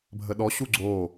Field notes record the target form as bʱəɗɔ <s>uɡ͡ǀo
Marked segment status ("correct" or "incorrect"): incorrect